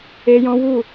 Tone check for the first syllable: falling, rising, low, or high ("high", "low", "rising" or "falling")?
high